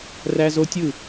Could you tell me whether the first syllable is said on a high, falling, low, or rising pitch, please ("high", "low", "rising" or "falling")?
high